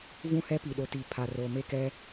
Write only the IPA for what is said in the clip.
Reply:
v ũ˦ h ɛ˦ p i˨ ɗ o˨ t i˨ pʰ a˨ r o˨ m e˦ k ɛ˦

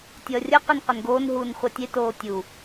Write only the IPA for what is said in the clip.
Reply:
tʲ ʌː rʲ ʌ q i n q ɛ n ɡ oː n ɦ uː n χʷ ɛ tʲ e t oː tʲ u

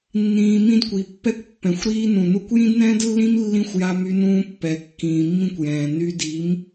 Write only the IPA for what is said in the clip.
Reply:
nː ĩː˧ m ĩ˦ d kʷ i˨ pː ɛ˦ kʷ pː ɛ̃˨ xʷ ɾ iː˦ n ũ˨ n u˧ kʷ j ĩ˦ d n ɛ̃ː˦ d lː ĩ˦ m lː ĩ˦ xʷ j a˦ m y˦ n ũː˦ pː ɛ˨ kː ĩː˨ mː ĩ˦ kʷ j ɛ̃ː˨ n y˧ d i˨˦ m

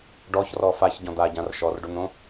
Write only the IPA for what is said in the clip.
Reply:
ɖ ɔ ç r ɔ f a ç ɟ ɔ̃ d̪ a ɟ ã r ʃ ɔ r ɖ o n̪ õ

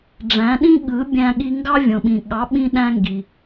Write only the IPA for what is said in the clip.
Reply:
ɖ͡ʐ æ̃˩˥ ɗ ĩ˥ ɠ ɯ˩˥ bʲ æ̃˧ ɠ i˧ ŋ ɡ ɑ˥ vʲ õ˩ ɓ ĩ˩ ɠ ɑ˩˥ ɓ ĩ˧ ɗ æ̃˧ ŋ ɡ i˩

